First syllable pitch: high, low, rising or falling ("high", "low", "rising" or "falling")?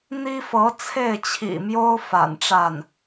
high